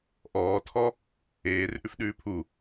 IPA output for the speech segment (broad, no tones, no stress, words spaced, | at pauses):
ʔɔːtʰɔ | eːrʔʉf ɗʉːpʰu